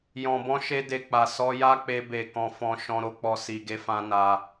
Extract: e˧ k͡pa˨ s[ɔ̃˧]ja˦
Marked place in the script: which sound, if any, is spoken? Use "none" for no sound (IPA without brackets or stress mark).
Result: ɔ˧